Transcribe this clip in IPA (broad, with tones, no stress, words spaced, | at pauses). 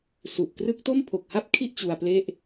su˨˩ʔkrɯ˦˥k̚ to˥˩m pʰo˨˩k̚ha˥˩p̚kʰi˥˩ʔ t͡ɕu˧a̯ple˥˩ʔ